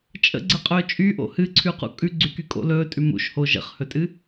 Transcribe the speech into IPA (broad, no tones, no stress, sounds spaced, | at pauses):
t͡ʃʼ ə̰ ɡ͡ǀ ə qʼ ɵː t͡ʃʼ y ʔ o̰ h ɨ ǀʰ ʉ q ṵ kʼ ʉ ɡ͡ǀ y k y kʼ o̰ l ɵː tʼ ʉ m ṵ ʃ h o ʒ ə̰ χ h ɵ tʼ ɨ